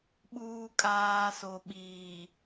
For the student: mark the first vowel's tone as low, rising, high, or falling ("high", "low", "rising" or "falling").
low